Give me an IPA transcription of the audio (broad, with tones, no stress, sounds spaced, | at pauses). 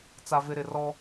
t͡s a˨ v ɪ˨ ɾ ɪ˨ r ɔ˦